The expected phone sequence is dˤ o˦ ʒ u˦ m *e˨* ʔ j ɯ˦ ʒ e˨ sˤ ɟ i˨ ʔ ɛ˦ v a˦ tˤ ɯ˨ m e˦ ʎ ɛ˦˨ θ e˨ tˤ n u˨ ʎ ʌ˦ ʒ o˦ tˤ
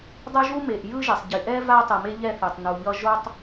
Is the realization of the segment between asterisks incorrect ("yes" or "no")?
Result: no